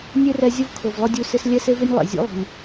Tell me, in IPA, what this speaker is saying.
nʲ e˦ r ɛ˧ zʲ ʊ˦ v kʰ ʊ˨ v lˠ ʊ˦ dʲ u˧ s ɪ˧ s lʲ ɛ˦ s e˦ v ɪ˦ nʲ lˠ ḛ˨ zʲ ṵ˦ lˠ i̤˨ lʲ

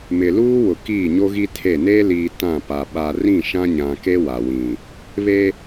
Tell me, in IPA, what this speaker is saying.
m ɪ˨ l uː˦ w ʊ˨ k iː˦˨ ɲ o˦ ɣ i˦ tʰ e˦˨ n eː˦ l iː˨ t ã˦˨ p a˨ ɓ a˨ r ĩ˦˨ ʃ ã˦ ɲ ã˨ k e˦ w a˨ w ĩ˨ | β e˦

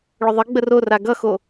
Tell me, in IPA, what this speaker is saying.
ɭ ʏ ðˤ ɘ ɡ͡b ə r o r a ɡ ʌ x o

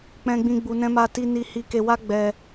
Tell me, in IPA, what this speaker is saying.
k͡p ɛ̃˧ ɡ͡b ĩ˧ ɡ͡b u˧ n ɛ̃˦ m a˦ t i˦ n i˧ h i˧ k e˧ w a˦ ɡ͡b ɛ˧

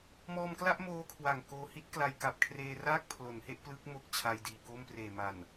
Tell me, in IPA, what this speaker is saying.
m ɔː˧ m k l a˥˩ ʔ m oː˧ kʰ w a˨˩ ŋ k oː˧ h i˥˩ t̚ k l a˧ j k a˨˩ p̚ kʰ r eː˧ r aː˥˩ k̚ pʰ l o˩˦ n h e˥˩ ʔ p l ɯ˦˥ k̚ m o˥˩ k̚ t͡ɕʰ a˧ j d iː˨˩ k o˥˩ m p r eː˨˩ m a˨˩ n

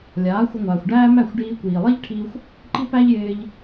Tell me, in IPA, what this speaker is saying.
lʲ aː˩˥ xʷ ɪ˧ ŋʷ aː˩ xʷ ɖ æː˥ m æ˥˩ xʷ ɖ iː˧ kʷ iː˩ lˠ i˥ ʎ ʈʰ i˧ xʷ | ǃ i˥ p æ˥ ʎ j ɪː˧ ʎ

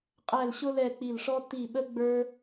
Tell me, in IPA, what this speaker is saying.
qʼ æ˦˨ l ɕ ʊ˥ l ɛ˦˨ k͡p i˦˨ l ʂ ɔ˥ t i˦˨ ɓ ə˥ ɡ͡b ə˞˥

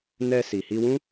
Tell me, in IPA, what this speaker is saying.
n ɛ˧ s i˨ h i˧ w ũ˦

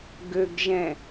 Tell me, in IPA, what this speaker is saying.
ɡ ø ɡ ʒ ɛ̃

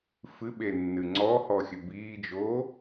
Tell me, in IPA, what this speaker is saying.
f ɨ ɓ e nː ɨ ŋ͡ǀ ɔ h ɔ xʲ ɘ b iː d͡ʒ oː

